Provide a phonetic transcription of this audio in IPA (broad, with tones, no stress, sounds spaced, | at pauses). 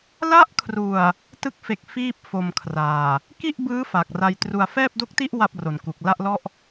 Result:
l a˦˥ ʔ kʰ r u˨˩ a̯ | t ɯ˦˥ k̚ f e˨˩ k̚ f iː˥˩ p̚ f o˧ m kʰ r aː˨˩ | k i˥˩ ʔ b ɯː˦˥ f a˨˩ k̚ r a˧ j t r u˨˩ a̯ f ɛː˥˩ p̚ d o˦˥ k̚ t i˥˩ ʔ w a˥˩ p̚ r o˨˩ n k u˨˩ k̚ l a˥˩ ʔ l ɔ˥˩ ʔ